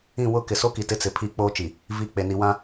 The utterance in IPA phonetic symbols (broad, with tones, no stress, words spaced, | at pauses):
ĩ˦˨ wʊ˦˨kɪ˨ so˦ki˨ tɪ˦t͡sɪ˨pʰi˦˨ k͡poː˦t͡ʃi˨ | vi˨ k͡pe˨ ni˨wã˦